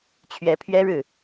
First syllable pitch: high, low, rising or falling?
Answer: rising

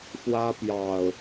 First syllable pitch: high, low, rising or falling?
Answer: high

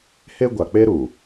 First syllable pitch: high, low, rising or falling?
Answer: high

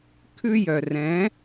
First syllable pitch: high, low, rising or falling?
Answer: high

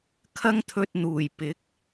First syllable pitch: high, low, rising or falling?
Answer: high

